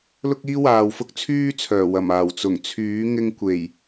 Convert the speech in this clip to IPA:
l ʊ˥ k̚ iː˥ w aː˨ w f ʊ˥ k̚ t͡sʰ yː˥ t͡sʰ œː˨˩ w ɐ˨˩ m aː˨˩ w t͡s ʊ˨˩ ŋ t͡sʰ yː˨˥ ŋ ɪ˧ ŋ kʷ e˨˩ j

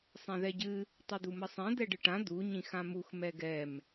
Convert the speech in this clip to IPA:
sˤ ɛ̃ ð ɛ ɟ ɨ | tˤ ɨ d̪ u m ə sˤ ɛ̃ d̪ ɛ ɖ ɨ ʈ ã d̪ u ɲ ĩ x ã m u x m ɛ ɡ ɛ m

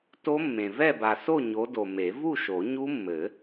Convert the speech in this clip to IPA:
t o˦˥ mː ẽ˨ v ɛ˥˨ b a˨ s o˥˨ ɲ o˨˦ d o˨ m e˨˩˦ v u˥˨ ʃ o˨˩˦ ɲ u˦˥ mː ɘ˨˩˦

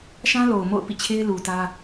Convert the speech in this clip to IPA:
ʃ ã˦ l o˨ ʊ̯ m o̰˦˨ ʊ̯ p ḭ˦˨ t͡ɕʰ e˦ ɪ̯ l u˨ t ä˦

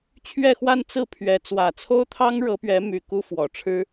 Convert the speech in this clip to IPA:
t͡ɕʰ ɥ ɛ˥˧ x w a˥˧ n t͡s ɹ̩˥˩ pʰ ɥ ɛ˧˥ t͡s w ä˨˩ t͡sʰ o˥ ʊ̯ t̪ʰ ɑ˥ ŋ ɻ ɤ˧˥ p ɥ ɛ˧˥ m y˨˩ k u˥ f w ɔ˨˩ ʈ͡ʂʰ ɻ̩˥

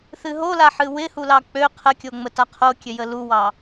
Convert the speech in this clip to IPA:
θ ɨ ɦ o l a ħ ɨ w ɪ h u l ɑ k͡p ø qʰ ə kʲ o ŋ͡m ə t a qʰ o kʲ ø j ə l u w ɑ

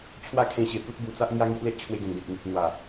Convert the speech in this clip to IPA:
t͡ɕʰ w a˦ kʰ ẽ˧ ɕ e˨˩ p u˦ t̚ b u˧ t͡s a˦ ʔ ŋ j a˦ ŋ i˦ ʔ l e˦ ʔ t͡ɕʰ w e˧ ɡ ẽ˨˩ n ɡ ẽ˨ p̚ ŋ i˨ p̚ n̪ w a˨˩

